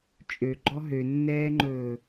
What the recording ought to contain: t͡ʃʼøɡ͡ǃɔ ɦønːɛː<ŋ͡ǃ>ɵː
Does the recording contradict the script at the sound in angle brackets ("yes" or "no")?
no